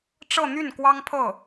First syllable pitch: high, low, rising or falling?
falling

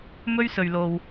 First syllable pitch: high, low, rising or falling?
high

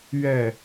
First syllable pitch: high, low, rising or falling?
falling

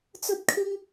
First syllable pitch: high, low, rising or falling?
high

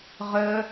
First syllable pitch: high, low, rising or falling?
high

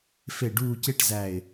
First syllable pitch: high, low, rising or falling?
low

